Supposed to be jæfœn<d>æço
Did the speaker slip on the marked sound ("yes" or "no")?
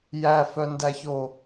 no